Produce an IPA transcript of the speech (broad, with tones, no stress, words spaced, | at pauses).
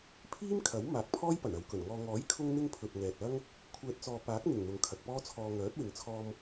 pʰiː˥mkʰɐ˨˥w maː˨k̚pʰɔː˥jpɐ˨˩n ɐ˨˧wkɵ˨˩nŋɔː˧ ŋɔː˨˥jkʰʊ˧ŋn̪ɪ˧ŋ pʰɵ˨t̚ŋɛː˨t̚ɐ˥ŋ | kʷʰɛː˨t̚ t͡sɔː˨ paː˨˥k̚n̪ɪ˨˩ŋ n̪ʊ˨˧ŋkʰɐ˨k̚pɔː˥t͡sʰɔː˧ ŋœː˨˥t̚wɪ˨ŋt͡sʰɔː˧m